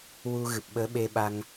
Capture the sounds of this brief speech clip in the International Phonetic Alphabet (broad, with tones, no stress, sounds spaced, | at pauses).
w u˧ ɣ ɨ˨˩ p̚ ɓ əː˧˥ ɓ e˧ ɓ a˧ ŋ